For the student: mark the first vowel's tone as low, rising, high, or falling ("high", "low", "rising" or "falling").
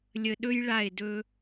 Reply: low